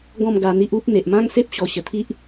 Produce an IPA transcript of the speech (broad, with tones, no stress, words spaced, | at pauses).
ɡɔ̃˥˧m ɡa˧n̪i˦ʔ u˦p̚ n̪e˨ʔmã˦ŋse˦p̚ ɕɔ˨˩ɕə˨˩t̪ʰi˦ʔ